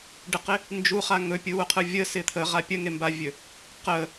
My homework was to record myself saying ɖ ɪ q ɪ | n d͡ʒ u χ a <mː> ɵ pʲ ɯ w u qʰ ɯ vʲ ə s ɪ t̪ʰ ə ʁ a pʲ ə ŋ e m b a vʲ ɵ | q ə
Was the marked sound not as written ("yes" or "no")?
yes